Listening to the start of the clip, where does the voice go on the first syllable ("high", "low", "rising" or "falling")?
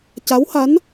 rising